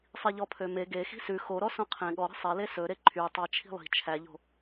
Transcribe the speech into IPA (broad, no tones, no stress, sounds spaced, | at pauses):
sˤ i ʎ ɔ pʰ ø m e ɡ e x i̤ s ʉ x o ɾ ɔ s õ qʰ ẽ ɠ ɔ ɾ i̤ sˤ ɛ l e s ɵ ɾ e ǃʰ y tˤ ɑ t͡ʃʰ i̤ lˠ i̤ t͡ʃʰ æ ʎ o̤